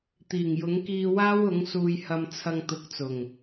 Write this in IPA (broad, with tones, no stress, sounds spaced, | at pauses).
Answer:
t̪ iː˨˩ ŋ j ʊ˨˥ ŋ k iː˧ w aː˥ w ʊ˨˥ ŋ s uː˧ j h ɐ˧ m t͡sʰ ɐ˧ ŋ t̪ ʊ˨˥ k̚ t͡s ʊ˨˩ ŋ